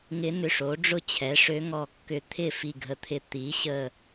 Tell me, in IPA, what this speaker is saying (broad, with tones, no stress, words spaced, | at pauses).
ŋɪ˧˥ nʏ˧˩ʂo˩˥ ɖ͡ʐʊ˥˩t͡ɕʰɛ˩˥ ʂø˧˥ŋɔ˧˩kːʏ˧˩ t̪ʰɪ˥˩ fi˧˩ɡʱə˧˩ t̪ʰɪ˧˩ t̪i˩˥ɕə˧˩